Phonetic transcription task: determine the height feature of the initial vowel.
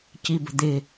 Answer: high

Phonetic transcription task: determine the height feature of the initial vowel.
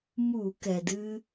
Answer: high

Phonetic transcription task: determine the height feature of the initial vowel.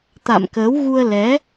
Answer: low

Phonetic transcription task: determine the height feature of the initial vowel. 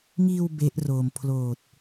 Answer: high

